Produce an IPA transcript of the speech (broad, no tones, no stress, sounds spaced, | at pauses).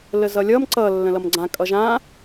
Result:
l ə z ʌ lʲ ʌ m ǀ ʌ lː ə̃ l ʌ m ɡ͡ǀ ã kʼ ʌ ʒ ã